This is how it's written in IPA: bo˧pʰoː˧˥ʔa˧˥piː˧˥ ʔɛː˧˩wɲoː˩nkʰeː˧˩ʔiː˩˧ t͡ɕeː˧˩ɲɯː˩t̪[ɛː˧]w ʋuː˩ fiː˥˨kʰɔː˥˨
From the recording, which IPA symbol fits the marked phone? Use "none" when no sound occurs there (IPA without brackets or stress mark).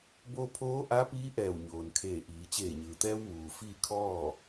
ɛː˧